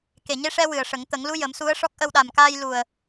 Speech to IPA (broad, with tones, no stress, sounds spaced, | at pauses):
k e˨˩ ɲ e˧ ʂ ɛ˧ w ɨ˨˩ ə̯ ʂ ə˨˩˦ ŋ t̪ ə˨˩˦ ŋ l u˧˥ j ə˨˩˦ m s u˧˥ ə̯ ʂ ɔ˦˥ k̚ ʔ ə˧ w ɗ a˨˩ m k aː˧ j l u˨˩ ə̯